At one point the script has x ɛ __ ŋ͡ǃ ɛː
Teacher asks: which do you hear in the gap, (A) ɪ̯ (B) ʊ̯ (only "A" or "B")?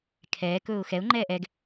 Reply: B